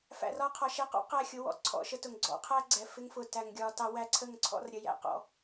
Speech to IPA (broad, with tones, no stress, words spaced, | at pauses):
fæ̰˨rɒ˧qʰɒ˨ʃɛ˧ qɔ̰˦ qæ˦˨xʲʊ˧wɔ̰˨ ǀʰɔ̰˧ʃə˦tʊ˨ŋ ɡ͡ǀɔ̰˧qʰæ˦ ɡ͡ǀɛ˨fɪ˦ŋfʊ˧ tæ˧ŋɡʲɒ˦tɑ˦ wæ˦ǀʰə˦˨ŋǀʰɔ̰˦r ɾʲə˧jæ̰˦qɔ̰˦